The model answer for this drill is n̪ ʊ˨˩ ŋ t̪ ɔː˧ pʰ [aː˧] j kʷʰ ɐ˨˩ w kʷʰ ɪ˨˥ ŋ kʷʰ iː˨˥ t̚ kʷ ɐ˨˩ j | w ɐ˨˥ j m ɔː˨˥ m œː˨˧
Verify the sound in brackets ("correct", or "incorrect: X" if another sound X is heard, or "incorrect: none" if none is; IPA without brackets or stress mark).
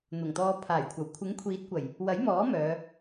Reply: incorrect: aː˨˩